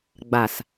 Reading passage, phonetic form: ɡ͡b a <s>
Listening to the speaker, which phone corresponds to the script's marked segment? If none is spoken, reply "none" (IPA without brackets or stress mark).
s